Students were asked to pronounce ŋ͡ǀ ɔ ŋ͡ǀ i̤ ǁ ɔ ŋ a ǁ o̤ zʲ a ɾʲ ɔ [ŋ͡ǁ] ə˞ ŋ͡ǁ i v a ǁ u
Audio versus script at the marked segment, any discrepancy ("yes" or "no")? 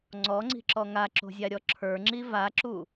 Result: yes